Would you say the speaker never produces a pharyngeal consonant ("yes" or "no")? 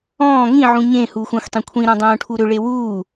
no